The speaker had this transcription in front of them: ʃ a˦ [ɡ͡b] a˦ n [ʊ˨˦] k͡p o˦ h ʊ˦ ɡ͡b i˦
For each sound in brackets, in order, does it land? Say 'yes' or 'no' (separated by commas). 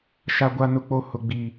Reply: no, no